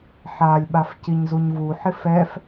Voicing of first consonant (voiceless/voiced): voiceless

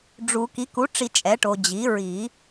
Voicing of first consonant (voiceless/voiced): voiced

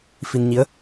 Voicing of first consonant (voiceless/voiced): voiceless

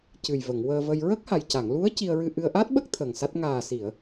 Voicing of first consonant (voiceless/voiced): voiceless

